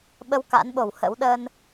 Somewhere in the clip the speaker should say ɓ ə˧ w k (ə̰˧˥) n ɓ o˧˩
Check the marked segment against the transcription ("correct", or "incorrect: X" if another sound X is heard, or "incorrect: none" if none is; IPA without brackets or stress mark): incorrect: a̰˧˥